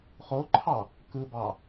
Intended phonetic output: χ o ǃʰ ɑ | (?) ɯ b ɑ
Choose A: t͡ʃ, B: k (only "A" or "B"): B